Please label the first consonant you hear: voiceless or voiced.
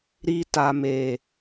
voiced